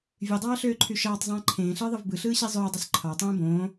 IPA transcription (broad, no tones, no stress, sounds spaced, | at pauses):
vʲ ø dˤ ɑː ɬ øː ǃʰ y ʃ ɑː tˤ zˤ ẽː ǃʰ ẽː ɬ ɯː ðˤ ɯ v b ɯ ɬ ɯː ɕ i zˤ øː dˤ y s ǃʰ ɑ tˤ ẽː b õː